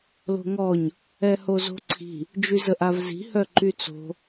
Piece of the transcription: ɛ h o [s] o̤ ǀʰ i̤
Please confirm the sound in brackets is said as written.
no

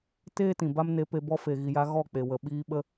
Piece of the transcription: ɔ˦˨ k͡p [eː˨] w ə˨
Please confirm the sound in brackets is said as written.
no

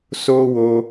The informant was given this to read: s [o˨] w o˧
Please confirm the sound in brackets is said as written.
no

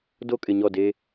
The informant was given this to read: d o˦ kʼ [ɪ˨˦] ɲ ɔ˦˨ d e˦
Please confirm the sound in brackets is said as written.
no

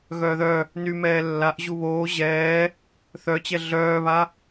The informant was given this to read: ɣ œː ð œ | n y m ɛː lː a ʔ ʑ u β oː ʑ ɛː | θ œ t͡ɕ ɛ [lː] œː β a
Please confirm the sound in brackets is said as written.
no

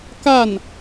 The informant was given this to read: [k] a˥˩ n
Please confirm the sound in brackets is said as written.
yes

